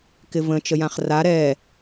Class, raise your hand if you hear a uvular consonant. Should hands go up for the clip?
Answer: yes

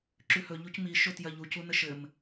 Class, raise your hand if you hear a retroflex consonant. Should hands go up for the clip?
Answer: no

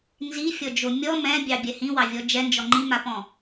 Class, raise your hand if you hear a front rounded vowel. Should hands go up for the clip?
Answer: no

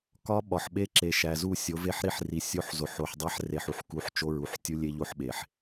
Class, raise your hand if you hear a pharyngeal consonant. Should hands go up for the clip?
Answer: yes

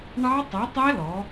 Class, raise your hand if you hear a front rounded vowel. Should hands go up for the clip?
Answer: no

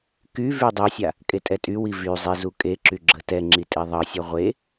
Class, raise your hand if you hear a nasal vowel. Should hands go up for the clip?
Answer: no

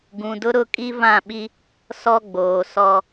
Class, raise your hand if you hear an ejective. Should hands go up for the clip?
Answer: yes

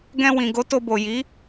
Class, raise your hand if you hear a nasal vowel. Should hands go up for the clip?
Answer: yes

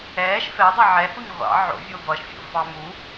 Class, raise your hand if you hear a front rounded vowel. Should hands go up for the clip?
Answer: no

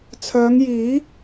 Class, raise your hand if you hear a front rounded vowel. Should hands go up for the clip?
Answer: yes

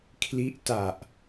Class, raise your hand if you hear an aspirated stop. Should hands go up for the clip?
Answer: yes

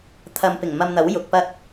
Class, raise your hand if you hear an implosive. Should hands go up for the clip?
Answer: no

